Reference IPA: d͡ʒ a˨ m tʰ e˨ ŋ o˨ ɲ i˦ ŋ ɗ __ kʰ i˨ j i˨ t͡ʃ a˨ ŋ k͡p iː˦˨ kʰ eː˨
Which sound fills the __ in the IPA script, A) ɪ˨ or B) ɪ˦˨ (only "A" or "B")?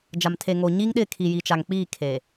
B